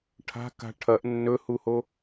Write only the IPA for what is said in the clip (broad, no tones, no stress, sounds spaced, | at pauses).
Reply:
ʈʰ a̤ k a̤ ʈʰ ɐ ʔ nː ɵ h u h o